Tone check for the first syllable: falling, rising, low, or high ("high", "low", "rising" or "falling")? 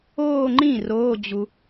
falling